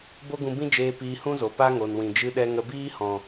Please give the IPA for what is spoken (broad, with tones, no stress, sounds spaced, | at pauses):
b o˦ ɡ ũ˧ b ĩ˦ d͡ʒ eː˧ p iː˧ h ũ˦ z o˨ p a˦ ŋ o˨ n w ĩ˨ d͡ʒ ɨ˧ ɗ ɛ˧ ŋ ə˧ b iː˦ h ɔ̃˨